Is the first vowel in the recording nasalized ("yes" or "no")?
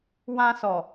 yes